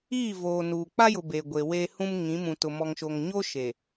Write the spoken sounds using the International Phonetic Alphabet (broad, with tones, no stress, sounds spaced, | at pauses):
iː˦˨ v oː˨ n uː˨ k͡p a˦ j ʊ˨ b e˨ ɡʷ e˨ w eː˦ h ũ˦ m ŋ ĩ˨˦ m ũ˨ t ʊ˨ m ɔ˨ ŋ ʃ o˨ ŋ ɲ o˦ ʃ e˨